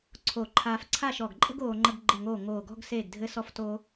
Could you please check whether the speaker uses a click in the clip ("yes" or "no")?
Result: yes